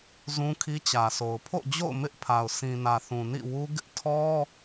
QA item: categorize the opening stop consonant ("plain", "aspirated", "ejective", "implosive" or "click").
aspirated